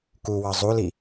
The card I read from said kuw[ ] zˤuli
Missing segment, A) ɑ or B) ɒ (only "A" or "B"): A